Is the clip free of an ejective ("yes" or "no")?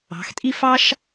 no